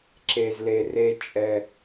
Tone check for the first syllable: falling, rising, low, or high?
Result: low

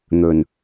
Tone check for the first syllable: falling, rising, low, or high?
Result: low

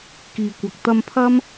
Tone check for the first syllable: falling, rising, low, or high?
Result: low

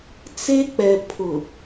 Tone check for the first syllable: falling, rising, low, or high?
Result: high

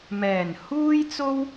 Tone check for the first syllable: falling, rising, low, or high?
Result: low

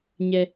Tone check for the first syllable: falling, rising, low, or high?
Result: high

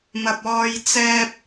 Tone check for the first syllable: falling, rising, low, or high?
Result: low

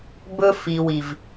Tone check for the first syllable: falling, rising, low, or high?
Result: high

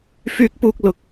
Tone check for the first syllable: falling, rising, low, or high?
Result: high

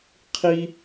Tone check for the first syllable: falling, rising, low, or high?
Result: high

